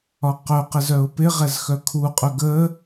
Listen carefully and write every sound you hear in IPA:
ɒqœqɪz œʊ̯pɪʁɛz xœkʰuqʼœ ɡə

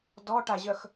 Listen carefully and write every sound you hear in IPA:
dɔʈaʑœx

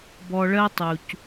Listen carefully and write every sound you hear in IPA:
bɔ˧ɭɜ˦tˤu˨c

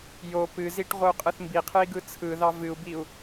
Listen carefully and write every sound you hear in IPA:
jo pɨziʈ ʁʷɯu̯qʼɯθmbiqʰɨi̯ ɡɯt͡sʰɯðɑ vɨu̯biu̯

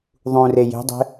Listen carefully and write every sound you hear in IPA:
ðˤũre je̤dˤe̤

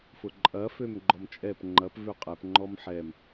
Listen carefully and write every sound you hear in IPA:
fʊǃʼɐ fømɡ͡ǃɔmt͡ʃʼɛp ŋ͡ǃɐp vøqʼɛp ŋ͡ǃɔmħɛm

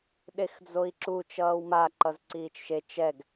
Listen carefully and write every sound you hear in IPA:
ɗexd͡zoi̯ǁu t͡ʃʌːwma ǃʌzǀiːt͡ʃʃe t͡ʃɛɡ

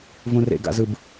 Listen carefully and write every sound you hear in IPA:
vũrḛɡ a̰zɯb

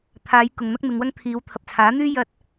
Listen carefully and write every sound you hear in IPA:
t̪ʰaː˨˧j kʊ˨ŋn̪ɐ˥k̚mɪ˨˧ŋwɐ˥ŋ t̪ʰiː˨˧wt̪ʰɐ˨p̚ t͡sʰaː˨˥n̪yː˥ jɐ˧t̚

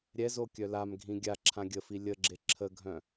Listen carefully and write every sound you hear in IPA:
ɾʲɛzo kʲœlamɡʱĩ ɡʲaǁʰã ɡʲəfi lʲəɡ͡ǁe ǁʰəɡʱœ̃

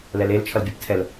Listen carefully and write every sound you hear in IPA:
lɛlel t͡ʃʰʌlbʲaptʰɛl

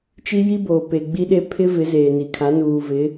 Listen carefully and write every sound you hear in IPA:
t͡ʃi˦ji˦boː˨ pe˨ɡ͡bi˦ɗe˦ pʰɪ˦ vɪ˨˦zeː˨ni˨kʰa˨˦ nuː˨vɪ˨˦

